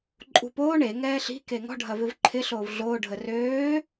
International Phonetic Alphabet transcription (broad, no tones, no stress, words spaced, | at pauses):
ǃʼṳpoːɳ e ŋɛːɬi̤ keŋɔ̤ ɖʱɐvɪvǃʰɪ ɬoːvɮoː ɖʱərøː